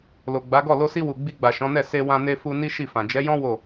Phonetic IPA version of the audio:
l o˨ ɡ͡b a˨˦ ɡ ɔ˦˨ l o˧ s i˧ w u˨ ɡ͡b i˧ ɡ͡b a˨ ʃ ɔ̃˨˦ n ɛ˦˨ s e˧ w ã˧ n e˧ f u˧ n i˦ ʃ i˦˨ f ã˨ d͡ʒ ɛ˨˦ j ɔ̃˦ w o˦˨

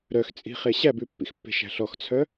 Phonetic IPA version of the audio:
ɾ œ x t͡sʼ i̤ χ e ɕ æ b ʉ pː ḭ x pː e̤ ʃ æ̤ ɬ ɔ x t͡sʰ œ

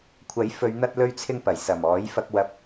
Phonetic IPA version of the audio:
kʷʰ ɐ˨˥ j f ɵ˨˧ ɥ n̪ ɐ˧ t̚ l ɵ˧ ɥ t͡sʰ ɪ˧ ŋ p ɐ˨˩ j s ɐ˨˩ m ɔː˨˥ j f ɐ˧ k̚ w ɐ˧ p̚

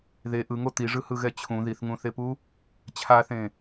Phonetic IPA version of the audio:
ð e ʔ ɯ ŋ o t̪ i ʐ ɯ h ɯ ɣ ɛ t͡ɕʰ ũ ð i θ ŋ ũ θ e p u | t͡ɕʰ a θ ẽ

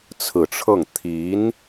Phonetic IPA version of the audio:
t͡sʰ ɹ̩˨˩ ʈ͡ʂʰ ɤ˥˩ ŋ t̪ʰ i˧˥ n

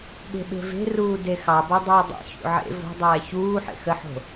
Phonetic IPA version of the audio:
ɠ e̤ ɓ e̤ v e̤ r uː d e x ɑ b o dˤ ɵː dˤ ḛ ç ṵ ʕ ḛ v o̤ dˤ ɛː ç uː ħ ḛ x ə ħ o̤

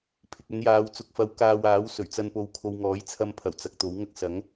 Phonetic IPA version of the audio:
pʰ ɪ˨ k̚ ɵ˨˧ n j aː˨˧ w t͡s ʊ˨ k̚ f ɐ˨˥ w k aː˧ w aː˨˥ w s ɵ˨˩ ɥ t͡s ɐ˧ n p o˨ w kʰ o˨ w ŋ ɔː˨˥ j t͡sʰ ɐ˧ m pʰ ɐ˨˩ w t͡s ɐ˨ k̚ t̪ o˨˥ w ŋ ɐ˥ k̚ s ɐ˨˥ ŋ

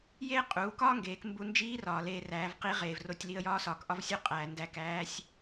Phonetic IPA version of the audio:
j eː˥ qʼ uː˩˧ k ɒː˥ ŋ ɡ eː˩˧ k m b u˧ n d͡ʒ iː˧˥ r ɒː˩ l eː˧ r æː˩˧ v q i˧˥ ʁ eː˩ v r o˩˧ tʲ l i˧ ə̯ j ɒː˧˥ s ɒː˩˧ k ʔ ɒ˧˥ v sʲ o˧˥ qʼ æː˩ n d æ˧ k æː˧˥ sʲ

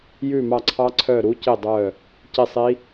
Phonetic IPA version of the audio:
j ʉ˦˨ m ɑ˦˨ ǀʰ ɑ˦˥ ǀʰ œ˦˨ ɾ u˦˥ c i˦˨ dˤ œ˦˨ | c i˦˨ sˤ i˦˥

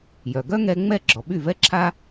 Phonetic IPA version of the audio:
j œ˩ ɡ œ˥ ŋ ɛ˧ ŋ͡m ɛ˥˩ ɡ͡ǁ ɔ˩ ɓ y˥˩ v ɛ˥ ǁʰ a˥

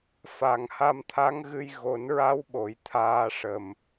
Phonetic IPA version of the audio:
f a˨˩ ŋ h a˧ m t̪ʰ a˧˥ ŋ ɣ ɨ˧ j ɣ o˨˩˦ n ɹ a˧˥ w ɓ o˨˩˦ j t̪ʰ aː˧ ʂ ə˨˩ m

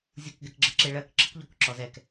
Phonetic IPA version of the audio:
zʲ u k ɡ ɛ k ɡ͡ǁ ə ǁ e ɭ ɜ k ǁ ə k ʎ ɔ k ǁ ɔ z ɛ k

